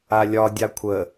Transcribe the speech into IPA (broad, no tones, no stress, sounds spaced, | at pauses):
a lʲ ɒ dʲ a kʷʰ ə